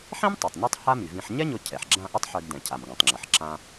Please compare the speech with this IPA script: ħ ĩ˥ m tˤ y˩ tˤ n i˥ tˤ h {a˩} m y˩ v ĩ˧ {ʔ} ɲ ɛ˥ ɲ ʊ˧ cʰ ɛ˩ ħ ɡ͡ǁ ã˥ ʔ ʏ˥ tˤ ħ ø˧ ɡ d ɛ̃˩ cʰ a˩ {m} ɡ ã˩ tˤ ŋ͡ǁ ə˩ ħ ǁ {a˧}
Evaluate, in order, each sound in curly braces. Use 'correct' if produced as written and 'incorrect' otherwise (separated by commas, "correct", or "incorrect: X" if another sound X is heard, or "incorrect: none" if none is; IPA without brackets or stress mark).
incorrect: a˥, incorrect: ħ, correct, incorrect: ã˧